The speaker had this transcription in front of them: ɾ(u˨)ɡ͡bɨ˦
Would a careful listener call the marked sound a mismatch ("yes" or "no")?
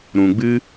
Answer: yes